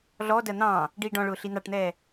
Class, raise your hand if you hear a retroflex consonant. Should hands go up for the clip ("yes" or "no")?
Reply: yes